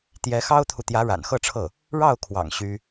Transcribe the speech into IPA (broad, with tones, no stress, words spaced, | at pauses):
t̪jɛ˧˥xɑ˥ʊ̯t̪ʰu˨ t̪jä˧˥ɻa̰˨˩nxɤ˥˧ʈ͡ʂʰɤ˥˩ | ɻɑ˥˩ʊ̯kʰwɑ̰˨˩ŋ ɕy˥